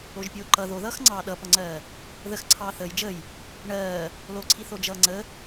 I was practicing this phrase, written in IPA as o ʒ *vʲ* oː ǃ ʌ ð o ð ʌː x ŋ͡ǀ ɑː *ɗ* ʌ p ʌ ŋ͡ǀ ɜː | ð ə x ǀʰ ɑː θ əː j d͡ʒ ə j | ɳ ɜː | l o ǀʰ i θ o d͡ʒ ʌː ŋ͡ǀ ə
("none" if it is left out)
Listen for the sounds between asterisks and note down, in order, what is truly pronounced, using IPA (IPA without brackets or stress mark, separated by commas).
pʲ, ɗ